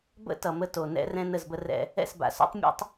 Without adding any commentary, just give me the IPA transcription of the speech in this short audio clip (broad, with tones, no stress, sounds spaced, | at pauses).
b ə̰˦ t ʌ˨ m ə˦ t o˨ n ɛ̰˦ r ɛ̃˦ n ə˦˨ z b ə˦ r ɛ̰˦ | ɛ̰˦˨ s b a̰˨ s o̰˦ tˤ mʲ ɛ̰˦ tˤ